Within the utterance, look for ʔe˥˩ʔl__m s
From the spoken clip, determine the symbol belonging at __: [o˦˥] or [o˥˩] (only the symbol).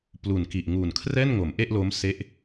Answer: o˦˥